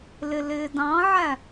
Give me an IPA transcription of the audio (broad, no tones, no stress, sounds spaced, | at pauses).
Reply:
l ɪ l ɪː d ɑ̃ ʕ æ